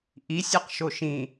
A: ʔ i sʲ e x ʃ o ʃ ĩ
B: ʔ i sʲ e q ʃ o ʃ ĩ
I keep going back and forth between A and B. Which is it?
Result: B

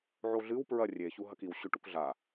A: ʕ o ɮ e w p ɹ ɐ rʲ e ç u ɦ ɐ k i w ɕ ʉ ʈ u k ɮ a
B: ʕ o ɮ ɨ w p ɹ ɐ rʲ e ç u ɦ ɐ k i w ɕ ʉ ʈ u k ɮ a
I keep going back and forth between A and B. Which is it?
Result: B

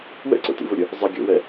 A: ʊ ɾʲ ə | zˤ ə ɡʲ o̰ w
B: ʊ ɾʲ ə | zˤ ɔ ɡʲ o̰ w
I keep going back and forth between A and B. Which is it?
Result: A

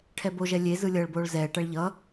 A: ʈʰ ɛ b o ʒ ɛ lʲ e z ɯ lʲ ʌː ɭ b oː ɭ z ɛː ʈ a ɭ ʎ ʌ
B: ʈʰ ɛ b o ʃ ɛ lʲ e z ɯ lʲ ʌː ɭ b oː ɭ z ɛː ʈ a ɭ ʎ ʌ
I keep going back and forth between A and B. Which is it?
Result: A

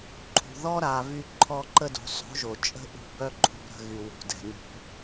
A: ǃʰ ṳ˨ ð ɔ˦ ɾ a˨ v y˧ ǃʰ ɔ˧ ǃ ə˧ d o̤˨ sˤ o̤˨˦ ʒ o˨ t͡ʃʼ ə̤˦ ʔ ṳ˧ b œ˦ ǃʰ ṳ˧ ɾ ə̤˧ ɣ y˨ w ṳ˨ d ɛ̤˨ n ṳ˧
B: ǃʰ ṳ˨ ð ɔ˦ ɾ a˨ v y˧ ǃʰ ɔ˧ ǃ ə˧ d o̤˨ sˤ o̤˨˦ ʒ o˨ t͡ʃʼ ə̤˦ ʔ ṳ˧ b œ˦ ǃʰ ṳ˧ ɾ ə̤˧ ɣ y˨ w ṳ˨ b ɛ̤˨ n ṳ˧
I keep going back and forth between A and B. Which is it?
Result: A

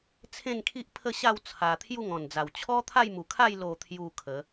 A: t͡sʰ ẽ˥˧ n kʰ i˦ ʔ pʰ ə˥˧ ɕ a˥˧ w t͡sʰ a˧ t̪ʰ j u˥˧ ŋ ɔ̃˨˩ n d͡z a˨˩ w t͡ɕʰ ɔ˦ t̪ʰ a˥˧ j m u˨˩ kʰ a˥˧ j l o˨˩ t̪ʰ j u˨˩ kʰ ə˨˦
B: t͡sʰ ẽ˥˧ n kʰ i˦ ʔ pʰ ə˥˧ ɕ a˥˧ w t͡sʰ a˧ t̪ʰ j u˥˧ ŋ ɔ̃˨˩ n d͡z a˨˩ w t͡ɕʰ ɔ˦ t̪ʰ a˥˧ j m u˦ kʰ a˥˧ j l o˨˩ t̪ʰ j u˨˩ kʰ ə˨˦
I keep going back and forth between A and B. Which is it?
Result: A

